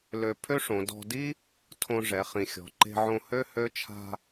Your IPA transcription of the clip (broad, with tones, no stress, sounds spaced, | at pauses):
l ø˧ pʰ ø˥ ʂ õ˩˧ d ɔ̤˧ d i˥ | tʰ õ˧ ʐ ɛ˩˧ χ ĩ˩ xʲ ɔ̤˩˧ ǃ e̤˧ ʕ õ˧ h ø˥ h ø˧˥ t͡ʃʰ a̤˧